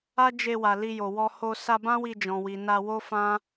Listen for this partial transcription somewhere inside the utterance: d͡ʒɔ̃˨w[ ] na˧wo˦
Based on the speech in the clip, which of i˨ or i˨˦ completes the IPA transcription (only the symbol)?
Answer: i˨